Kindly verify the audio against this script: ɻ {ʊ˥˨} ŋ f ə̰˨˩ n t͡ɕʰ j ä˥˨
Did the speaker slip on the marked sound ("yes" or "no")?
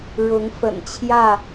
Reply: yes